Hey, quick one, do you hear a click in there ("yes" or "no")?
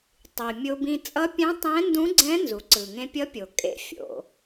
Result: yes